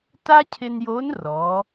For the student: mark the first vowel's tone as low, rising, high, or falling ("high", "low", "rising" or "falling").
high